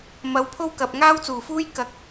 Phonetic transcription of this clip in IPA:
m ɐ˨˥ w pʰ o˥ w k ɐ˨ p̚ ŋ aː˥ w t͡s uː˨˩ f uː˥ j k ɐ˨˥ k̚

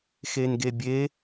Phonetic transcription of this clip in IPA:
x e n ɡ e bʲ e

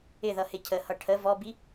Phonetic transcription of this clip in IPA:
ɪ ð ʌ h ɪ cʰ ə h ʌ ʈʰ ə v ɔ b i

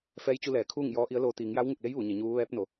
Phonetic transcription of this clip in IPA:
f ɛː˧˥ j t͡ɕ u˧ l ɛː˩˧ kʰ uː˥˨ ŋ j ɔː˧˥ ʔ i˧˥ ə̯ l oː˧ t̪ iː˩˧ ŋ j a˧˥ w ŋ u˧˩ k̚ l e˧˥ j ʋ u˩˧ ɲ e˩˧ ɲ uː˧˥ ʋ ɛː˧˥ p̚ n o˩˧

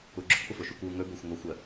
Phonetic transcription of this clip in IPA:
u ɡ͡ǁ ʊ kʷ ʔ ʊ f o ʃ u kʷ w u ŋ ɵ b ɵ xʷ ŋʷ ɜ xʷ ɜ

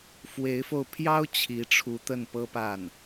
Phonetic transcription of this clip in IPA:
f w e˧˥ ɪ̯ f o˧ ʊ̯ pʰ j ɑ˥ ʊ̯ t͡ɕʰ i˧˥ ʈ͡ʂʰ u˧˥ t̪ ə˥˩ n p ɤ˥ p a˥˩ n

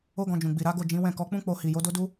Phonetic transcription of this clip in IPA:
o˦ ɡ ɔ̃˧ d͡ʒ ũ˨ ɡ͡b i˨ ɾ a˨˦ ɡ o˦˨ d͡ʒ ĩ˨˦ w ɛ̃˦˨ k ɔ˨˦ k͡p ũ˦ k͡p o˧ h i˨ j o˨˦ d o˦ d u˦

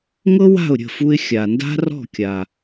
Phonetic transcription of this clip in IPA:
ŋ ɤ˥ w a̤˥˩ ʊ̯ ɾʲ ə̤˥˩ f u˧ ɪ̯ xʲ a˩ n d a̤˥ r ɔ̤˥˩ kʲ a˩

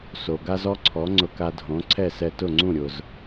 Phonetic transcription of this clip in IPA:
s o˩ ɡ a˥ z ɔ˥ ǀʰ ɔ˩˥ ŋ͡ǀ ʊ˧ k a˧ dʱ õ˩˥ ǀʰ ɛ˥˩ s ɛ˧ t ʊ˥˩ ŋ͡ǀ ũ˥˩ ɾʲ ʊ˩ z

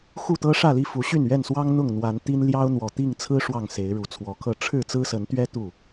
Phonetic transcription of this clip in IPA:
x u˥˨ t̪ ɤ˦ ʂ ä˥˨ l i˥˨ f u˨˦ ɕ y˥˨ n ɥ ɛ˥˨ n s w ɑ˦ ŋ n̪ ʊ˥˨ ŋ n̪ w a˨˦ n t̪ i˦ n l j ɑ˦ ʊ̯ n̪ w ɔ˨˩ t̪ i˥˨ ŋ t͡sʰ ɹ̩˦ ʂ w ɑ˥˨ ŋ s e˨˦ ɪ̯ ɻ u˨˩ t͡sʰ w ɔ˨˦ kʰ ɤ˥˨ ʈ͡ʂʰ ɻ̩˥˨ t͡s ɹ̩˦ s ə˨˦ n t̪ ɥ ɛ˦ t̪ u˥˨

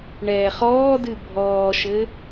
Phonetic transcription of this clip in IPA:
ɳ ɛː χ ɔː d ɨ bʱ ɔː ʃ ɘ

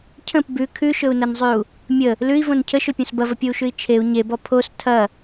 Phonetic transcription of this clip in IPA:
cʰ ə̃ p b ʉ kʰ ʉ ʃ ɵ u̯ n ɐ n zˤ ʉ u̯ | mʲ ə | l ʉ i̯ v õ n cʰ ə ʃ ɵ pʲ õ s b ɐ v ə pʲ o u̯ ʃ ʉ i̯ t͡ʃʰ e u̯ ɲ e b ɔ pʰ o s tʰ ɐ

